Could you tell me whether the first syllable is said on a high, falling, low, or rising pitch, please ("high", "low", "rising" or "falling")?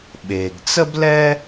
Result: low